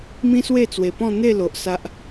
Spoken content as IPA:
m ĩ˦ s w e˥˧ t͡s w e˨˩ p ɔ̃˥˧ n̪ e˥˧ l o˨ ʔ s a˦ ʔ

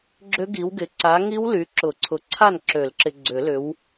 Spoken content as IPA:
ɡ͡ǁ ʏ˦˥ ɡ i˨˦ w ɡ ɪ˨˦ ǀ a˨˦ ŋ i˦˥ w l y˨˦ ǁ ʊ˨˩˦ ǀʰ ʊ˨˦ ǀʰ a˥˨ n ǁ ø˨˩˦ l ǁ ɪ˨ ɡ͡ǀ ʏ˨˩˦ l ʏ˨˦ w

